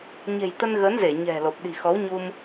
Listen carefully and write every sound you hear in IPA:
ɲ e̤˨˩ j t̪ ə˧ n ɣ ə˨˦ n z e˧˩ ɲ ɛ̤˨˩ l o˨˩ p̚ ɗ i̤˨˩ x ɔ˨˦ w ɲ u˧ m

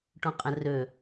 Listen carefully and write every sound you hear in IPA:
ʈ õ qʼ ə̃ r ø

